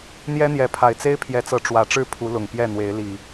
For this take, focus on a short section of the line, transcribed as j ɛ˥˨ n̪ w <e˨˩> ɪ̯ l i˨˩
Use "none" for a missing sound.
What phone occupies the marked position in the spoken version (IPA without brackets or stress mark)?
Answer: e˨˦